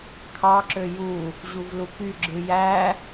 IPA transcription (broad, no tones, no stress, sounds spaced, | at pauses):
kʰ ɑ ǁ ø j u | ʑ u v l u k y ɡ͡ǁ ɯ j æ